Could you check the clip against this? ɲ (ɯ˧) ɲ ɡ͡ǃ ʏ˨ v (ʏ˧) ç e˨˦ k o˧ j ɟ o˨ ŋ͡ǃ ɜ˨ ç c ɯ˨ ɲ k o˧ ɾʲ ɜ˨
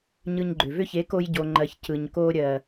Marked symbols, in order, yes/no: yes, no

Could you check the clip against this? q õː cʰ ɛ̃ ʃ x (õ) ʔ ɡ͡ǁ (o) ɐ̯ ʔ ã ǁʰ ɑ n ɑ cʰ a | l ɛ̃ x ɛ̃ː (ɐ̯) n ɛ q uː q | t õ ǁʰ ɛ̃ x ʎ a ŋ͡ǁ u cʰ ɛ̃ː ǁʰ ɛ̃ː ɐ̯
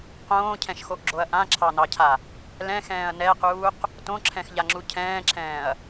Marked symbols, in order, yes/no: no, yes, yes

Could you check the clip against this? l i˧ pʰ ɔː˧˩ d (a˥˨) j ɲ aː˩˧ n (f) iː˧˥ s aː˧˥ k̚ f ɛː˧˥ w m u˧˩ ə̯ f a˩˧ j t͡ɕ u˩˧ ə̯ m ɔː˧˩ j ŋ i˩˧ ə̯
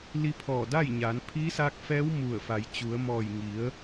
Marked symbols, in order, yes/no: yes, no

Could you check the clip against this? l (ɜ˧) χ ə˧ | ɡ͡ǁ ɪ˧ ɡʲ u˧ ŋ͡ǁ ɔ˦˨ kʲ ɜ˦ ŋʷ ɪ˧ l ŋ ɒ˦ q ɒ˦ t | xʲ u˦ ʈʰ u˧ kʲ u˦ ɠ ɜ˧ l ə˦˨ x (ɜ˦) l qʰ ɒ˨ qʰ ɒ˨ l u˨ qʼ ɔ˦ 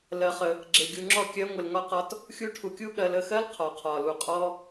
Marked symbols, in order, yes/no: yes, yes

